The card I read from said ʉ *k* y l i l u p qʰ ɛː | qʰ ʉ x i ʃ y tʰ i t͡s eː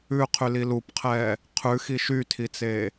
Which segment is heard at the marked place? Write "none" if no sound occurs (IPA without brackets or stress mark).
qʰ